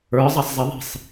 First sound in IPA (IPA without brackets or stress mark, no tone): ə˞